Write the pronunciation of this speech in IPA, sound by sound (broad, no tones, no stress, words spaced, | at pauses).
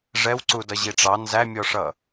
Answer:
ʐɛwǀudʌ ʑiʈ͡ʂɑ nzæmʲɔʂʌ